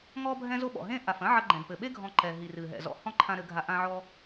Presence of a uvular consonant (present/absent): absent